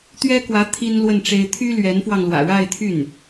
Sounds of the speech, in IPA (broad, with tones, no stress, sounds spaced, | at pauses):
t̪ ɥ ɛ˥ k w ä˧˥ t̪ʰ i˥ n l w ə˥˩ n ʈ͡ʂ e˥ ɪ̯ t̪ʰ y˥ l ɥ ɛ˧˥ n f w ɑ˧ ŋ l w ä̰˨˩ ɻ a˥˧ ɪ̯ t̪ʰ y˥˩ n